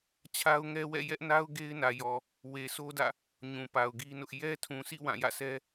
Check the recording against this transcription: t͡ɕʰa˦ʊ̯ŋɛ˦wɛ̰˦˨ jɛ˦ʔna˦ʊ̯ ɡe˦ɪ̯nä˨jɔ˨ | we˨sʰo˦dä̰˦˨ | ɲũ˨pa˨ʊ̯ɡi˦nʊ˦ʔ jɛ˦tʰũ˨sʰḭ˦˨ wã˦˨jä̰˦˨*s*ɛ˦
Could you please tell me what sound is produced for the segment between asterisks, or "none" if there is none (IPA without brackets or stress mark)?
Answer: s